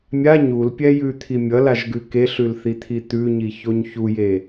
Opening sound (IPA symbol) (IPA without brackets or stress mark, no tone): mʲ